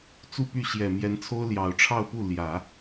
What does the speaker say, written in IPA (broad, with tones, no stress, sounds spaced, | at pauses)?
t͡s u˥˧ p y˥˩ ɕ j ɛ˨˩ m j ɛ˧˥ n t͡sʰ o˥ ʊ̯ l j ɑ˨˩ ʊ̯ ʈ͡ʂʰ ɑ˥˧ ʊ̯ p u˥˩ l j ä˨˩˦